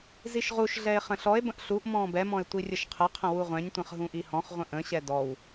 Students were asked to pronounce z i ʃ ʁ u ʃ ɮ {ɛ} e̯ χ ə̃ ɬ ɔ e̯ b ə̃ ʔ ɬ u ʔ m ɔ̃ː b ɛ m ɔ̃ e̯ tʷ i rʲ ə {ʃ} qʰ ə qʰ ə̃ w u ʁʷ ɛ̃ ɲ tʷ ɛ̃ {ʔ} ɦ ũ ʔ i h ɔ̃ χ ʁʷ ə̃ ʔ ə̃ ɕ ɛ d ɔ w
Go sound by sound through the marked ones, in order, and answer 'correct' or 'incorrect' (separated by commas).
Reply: correct, correct, incorrect